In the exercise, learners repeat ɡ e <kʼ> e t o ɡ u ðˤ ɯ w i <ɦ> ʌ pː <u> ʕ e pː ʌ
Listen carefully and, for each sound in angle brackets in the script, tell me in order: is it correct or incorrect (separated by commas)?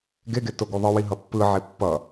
incorrect, correct, incorrect